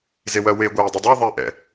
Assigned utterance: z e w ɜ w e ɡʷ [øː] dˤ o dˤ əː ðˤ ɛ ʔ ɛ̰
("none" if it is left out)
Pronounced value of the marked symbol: ɛː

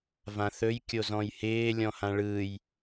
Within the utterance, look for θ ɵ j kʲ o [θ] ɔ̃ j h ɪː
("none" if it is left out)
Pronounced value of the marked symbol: z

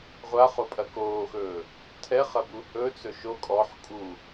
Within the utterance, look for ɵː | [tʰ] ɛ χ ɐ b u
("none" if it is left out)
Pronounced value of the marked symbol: tʰ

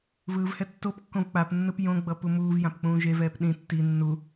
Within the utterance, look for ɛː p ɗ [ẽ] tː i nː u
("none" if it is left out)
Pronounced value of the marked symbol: ĩ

